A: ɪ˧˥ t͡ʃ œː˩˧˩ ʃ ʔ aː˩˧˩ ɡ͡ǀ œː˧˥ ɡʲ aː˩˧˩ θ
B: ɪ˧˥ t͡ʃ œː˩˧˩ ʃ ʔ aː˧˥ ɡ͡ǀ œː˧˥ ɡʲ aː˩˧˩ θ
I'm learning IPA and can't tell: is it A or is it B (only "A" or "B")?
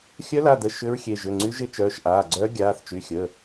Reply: A